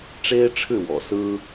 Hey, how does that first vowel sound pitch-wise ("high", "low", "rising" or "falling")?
high